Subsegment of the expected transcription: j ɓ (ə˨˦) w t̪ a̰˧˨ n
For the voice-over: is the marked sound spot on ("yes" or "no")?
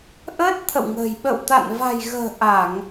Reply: no